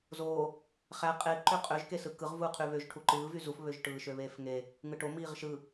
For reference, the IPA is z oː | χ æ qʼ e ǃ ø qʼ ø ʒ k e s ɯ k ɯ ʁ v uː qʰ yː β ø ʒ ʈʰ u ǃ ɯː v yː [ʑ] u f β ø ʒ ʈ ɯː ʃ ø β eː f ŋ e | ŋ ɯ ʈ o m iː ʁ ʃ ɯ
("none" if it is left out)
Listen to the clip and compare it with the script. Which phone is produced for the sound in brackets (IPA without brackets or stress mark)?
z